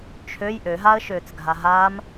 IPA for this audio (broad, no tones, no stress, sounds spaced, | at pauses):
t͡ʃʰ ø j ʔ ø ɦ a ə̯ ʃ øː t͡s ɡʱ a ɦ aː m